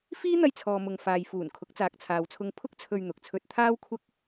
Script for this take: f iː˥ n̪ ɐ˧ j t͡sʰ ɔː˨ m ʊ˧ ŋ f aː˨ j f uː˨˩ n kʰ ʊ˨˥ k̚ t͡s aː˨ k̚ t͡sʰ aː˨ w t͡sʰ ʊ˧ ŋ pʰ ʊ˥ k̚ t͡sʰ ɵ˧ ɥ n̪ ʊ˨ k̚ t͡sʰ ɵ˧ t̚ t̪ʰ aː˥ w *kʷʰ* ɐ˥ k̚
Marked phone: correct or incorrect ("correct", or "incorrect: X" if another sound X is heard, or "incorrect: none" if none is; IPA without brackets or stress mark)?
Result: correct